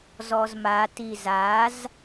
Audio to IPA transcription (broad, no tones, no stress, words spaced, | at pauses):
zɔzma tizaz